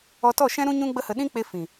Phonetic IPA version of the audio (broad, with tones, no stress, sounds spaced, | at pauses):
ɔ˧ t ɔ˦˨ ʃ ɛ̃˦ ɾ ũ˦ ɲ ũ˦ ɡ͡b ə˦ h ə˧ ɗ ĩ˦ k͡p e˧ f ĩ˨